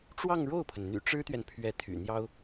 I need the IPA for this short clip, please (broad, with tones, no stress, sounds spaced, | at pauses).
ʈ͡ʂ w ɑ˥˧ ŋ ɻ o˥˩ ʊ̯ pʰ ə˩ n n̪ y̰˨˩ ʈ͡ʂ ɻ̩˥ t̪ ɥ ɛ˨ n pʰ ɥ ɛ˧˥ t̪ʰ y̰˨˩ n̪ j ɑ˥ ʊ̯